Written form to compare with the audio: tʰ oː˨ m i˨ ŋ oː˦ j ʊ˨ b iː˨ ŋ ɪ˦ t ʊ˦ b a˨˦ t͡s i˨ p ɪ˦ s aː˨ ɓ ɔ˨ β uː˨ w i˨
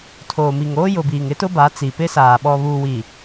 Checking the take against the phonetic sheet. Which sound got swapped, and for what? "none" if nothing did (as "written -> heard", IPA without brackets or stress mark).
none